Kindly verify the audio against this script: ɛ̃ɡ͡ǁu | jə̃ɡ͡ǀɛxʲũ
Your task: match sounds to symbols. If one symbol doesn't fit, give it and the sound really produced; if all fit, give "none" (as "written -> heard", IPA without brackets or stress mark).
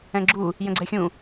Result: none